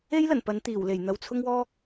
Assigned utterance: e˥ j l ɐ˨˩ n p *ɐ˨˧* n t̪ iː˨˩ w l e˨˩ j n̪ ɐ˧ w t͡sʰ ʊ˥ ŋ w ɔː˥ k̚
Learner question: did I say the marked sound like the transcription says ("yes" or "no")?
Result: yes